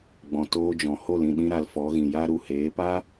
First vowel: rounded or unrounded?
rounded